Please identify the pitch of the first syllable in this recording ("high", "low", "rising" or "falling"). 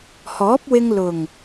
rising